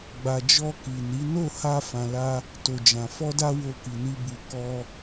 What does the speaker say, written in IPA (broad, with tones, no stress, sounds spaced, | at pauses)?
ɡ͡b a˨ d͡ʒ ɔ˧ k i˨ n i˨˦ n o˦˨ h a˧ f ã˨ l a˧ | t o˨ d͡ʒ ã˨ f ɔ˧ d a˧ w o˧ k i˨ n i˧ b u˨ k ɔ˧